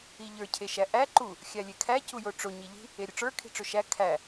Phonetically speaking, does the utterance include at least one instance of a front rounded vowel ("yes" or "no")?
no